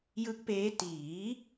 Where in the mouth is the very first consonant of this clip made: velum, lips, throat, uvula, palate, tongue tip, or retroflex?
palate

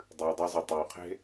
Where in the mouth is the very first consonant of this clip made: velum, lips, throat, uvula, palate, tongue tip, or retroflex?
tongue tip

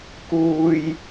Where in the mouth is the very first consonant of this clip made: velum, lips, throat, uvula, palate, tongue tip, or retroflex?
velum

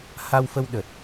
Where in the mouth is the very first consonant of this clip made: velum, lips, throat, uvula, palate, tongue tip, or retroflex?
throat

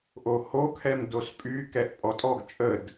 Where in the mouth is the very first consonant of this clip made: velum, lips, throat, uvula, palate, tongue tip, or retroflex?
throat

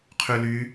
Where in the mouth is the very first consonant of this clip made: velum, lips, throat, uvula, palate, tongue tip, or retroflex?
uvula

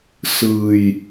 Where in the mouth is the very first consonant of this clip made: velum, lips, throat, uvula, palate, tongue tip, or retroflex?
tongue tip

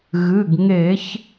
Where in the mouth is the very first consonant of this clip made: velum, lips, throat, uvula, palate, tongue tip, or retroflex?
velum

